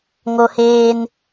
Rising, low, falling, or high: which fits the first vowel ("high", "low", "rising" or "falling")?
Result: high